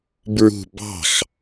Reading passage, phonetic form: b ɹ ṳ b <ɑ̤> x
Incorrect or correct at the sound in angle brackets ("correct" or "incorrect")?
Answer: correct